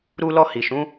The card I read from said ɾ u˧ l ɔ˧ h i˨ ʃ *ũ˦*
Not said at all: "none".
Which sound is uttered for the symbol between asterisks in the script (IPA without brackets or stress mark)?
ũ˨˦